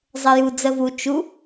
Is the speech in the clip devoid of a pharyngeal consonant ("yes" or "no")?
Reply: yes